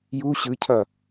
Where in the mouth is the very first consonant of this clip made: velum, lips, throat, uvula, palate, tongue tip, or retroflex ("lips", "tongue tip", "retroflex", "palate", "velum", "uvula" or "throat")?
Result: palate